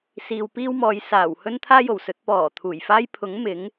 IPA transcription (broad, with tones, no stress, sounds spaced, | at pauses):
s iː˨ w p iː˥ w m ɔː˨˧ j s aː˨˩ w h ɵ˥ n t̪ʰ aː˥ j o˨˩ w s ɵ˨˥ t̚ p ɔː˨˩ t̪ʰ uː˨˩ j f aː˥ j pʰ ʊ˨˥ ŋ m ɪ˨˥ ŋ